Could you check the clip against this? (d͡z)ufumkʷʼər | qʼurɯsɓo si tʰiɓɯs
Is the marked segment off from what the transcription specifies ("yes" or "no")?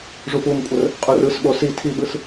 yes